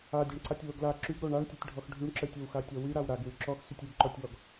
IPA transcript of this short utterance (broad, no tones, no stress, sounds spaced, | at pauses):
a dʲ a ɳ ǀ a tʲ w o ɡ l a ǁ y ɡ ɾ o ɳ a ɳ tʲ o tʲ ɖʱ ɔ x ɖʱ y ɳ ǁ ə tʲ o w x a tʲ ɔ w y ɾ a w ɾ a ɡ w y ǁ ɔ x s y tʲ y ɡ ǃ ɔ tʲ w ɔ ɡ